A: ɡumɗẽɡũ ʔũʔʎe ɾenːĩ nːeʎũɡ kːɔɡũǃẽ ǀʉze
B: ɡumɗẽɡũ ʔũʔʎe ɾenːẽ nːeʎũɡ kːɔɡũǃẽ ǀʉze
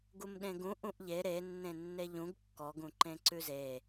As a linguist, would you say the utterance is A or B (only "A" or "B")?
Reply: B